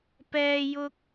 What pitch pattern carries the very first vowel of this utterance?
high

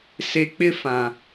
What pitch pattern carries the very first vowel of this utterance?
low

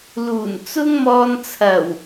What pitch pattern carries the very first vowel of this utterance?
low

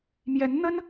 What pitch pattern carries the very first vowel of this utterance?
rising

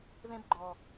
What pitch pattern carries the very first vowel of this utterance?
high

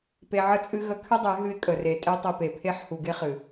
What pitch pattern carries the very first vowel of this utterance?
low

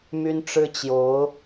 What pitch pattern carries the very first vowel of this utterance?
high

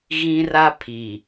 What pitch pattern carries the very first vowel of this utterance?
high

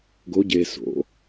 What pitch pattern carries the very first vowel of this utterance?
rising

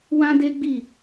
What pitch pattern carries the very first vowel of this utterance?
high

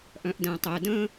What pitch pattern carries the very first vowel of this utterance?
low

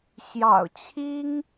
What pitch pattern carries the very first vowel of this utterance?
low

